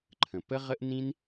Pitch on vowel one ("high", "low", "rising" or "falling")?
low